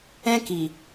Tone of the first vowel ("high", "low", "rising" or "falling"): high